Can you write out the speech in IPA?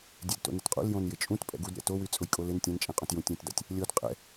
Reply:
dʲ ɛ d t o̰ n ɪ t qʼ ṵ l j õ n j ɪ t͡ʃʼ ũ t pʼ ɛ̰ ɡ u d ɾʲ a̰ t o w y t͡sʼ ʊ j kʼ o l ɪ n tʲ ɛ̃ n t͡ʃʼ ɛ̃ qʼ õ t j ũ tʲ ũ t d a̰ tʲ | lʲ o d qʼ ɛ̰

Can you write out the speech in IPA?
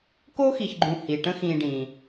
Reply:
k o˥ x i˨ ç ɡ͡ǃ ũ˨ h i˩ ʈ ə̃˦ x ĩː˨ ɖ ĩ˩

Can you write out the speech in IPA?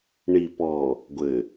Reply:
ɳ i˨ p ɔ˨ | ɡʷ ɘ˨

